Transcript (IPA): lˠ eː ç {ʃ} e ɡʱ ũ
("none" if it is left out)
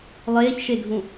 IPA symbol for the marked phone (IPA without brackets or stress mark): ʃ